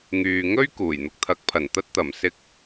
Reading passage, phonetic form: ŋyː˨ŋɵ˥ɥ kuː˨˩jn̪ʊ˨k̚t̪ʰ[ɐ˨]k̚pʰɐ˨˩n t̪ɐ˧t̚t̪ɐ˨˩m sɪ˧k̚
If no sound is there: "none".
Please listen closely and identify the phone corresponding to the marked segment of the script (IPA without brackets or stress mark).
ɐ˨˥